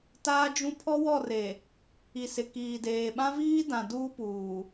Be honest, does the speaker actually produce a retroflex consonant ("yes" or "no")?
no